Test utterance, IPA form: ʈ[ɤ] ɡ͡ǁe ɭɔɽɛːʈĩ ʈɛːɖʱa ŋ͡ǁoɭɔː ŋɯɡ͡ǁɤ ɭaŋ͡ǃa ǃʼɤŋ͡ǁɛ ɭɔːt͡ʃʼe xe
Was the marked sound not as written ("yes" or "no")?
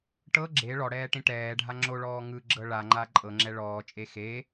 no